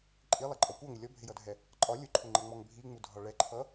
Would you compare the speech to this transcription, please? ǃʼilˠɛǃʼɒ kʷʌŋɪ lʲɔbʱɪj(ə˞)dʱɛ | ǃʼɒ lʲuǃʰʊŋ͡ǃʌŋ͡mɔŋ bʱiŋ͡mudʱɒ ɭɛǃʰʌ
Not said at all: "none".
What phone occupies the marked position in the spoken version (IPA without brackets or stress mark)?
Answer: ʌ